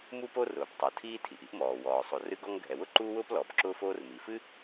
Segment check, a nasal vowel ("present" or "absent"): absent